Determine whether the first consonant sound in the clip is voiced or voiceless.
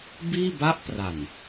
voiced